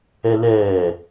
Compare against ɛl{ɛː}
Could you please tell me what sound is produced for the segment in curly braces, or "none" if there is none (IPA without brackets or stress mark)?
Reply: ɛː